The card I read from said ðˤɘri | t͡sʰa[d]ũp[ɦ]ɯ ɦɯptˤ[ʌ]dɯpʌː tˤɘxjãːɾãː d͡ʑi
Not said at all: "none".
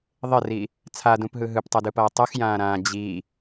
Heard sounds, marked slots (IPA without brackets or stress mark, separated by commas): d, ɦ, ʌ